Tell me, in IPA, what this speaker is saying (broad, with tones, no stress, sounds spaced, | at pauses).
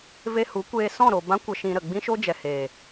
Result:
v e˧ h u˨˦ kʷ eː˧ s ɔ̃˦˨ ɾ o˨ b ã˦ kʷ ə˧ ʃ ĩ˧ ɾ ə˨ ɡ͡b ĩ˦ ʃ o˦ d͡ʒ ɛ˨ h eː˨